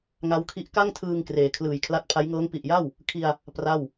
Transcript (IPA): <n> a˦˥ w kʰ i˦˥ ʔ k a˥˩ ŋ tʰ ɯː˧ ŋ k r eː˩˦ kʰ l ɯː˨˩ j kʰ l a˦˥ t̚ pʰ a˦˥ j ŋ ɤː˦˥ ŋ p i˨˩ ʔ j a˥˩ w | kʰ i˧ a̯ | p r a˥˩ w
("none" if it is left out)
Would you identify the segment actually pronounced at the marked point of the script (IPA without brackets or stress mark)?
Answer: ŋ